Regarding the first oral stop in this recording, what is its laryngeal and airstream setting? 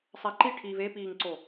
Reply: click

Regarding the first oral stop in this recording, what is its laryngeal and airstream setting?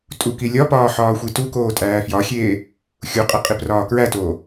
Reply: ejective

